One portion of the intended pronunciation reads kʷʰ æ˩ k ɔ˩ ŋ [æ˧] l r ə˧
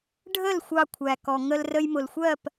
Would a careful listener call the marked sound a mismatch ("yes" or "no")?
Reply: yes